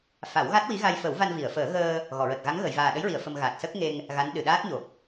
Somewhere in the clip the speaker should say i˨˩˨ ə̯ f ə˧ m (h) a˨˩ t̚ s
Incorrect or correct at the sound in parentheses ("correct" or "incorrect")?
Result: incorrect